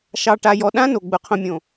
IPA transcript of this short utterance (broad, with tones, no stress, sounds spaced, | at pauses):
ʃ ɑ˨ ʈ a˨ j ɔ˨ ɗ ã˦ n o˨ ɡ͡b ʊ˨ qʰ õ˨ mʲ õ˨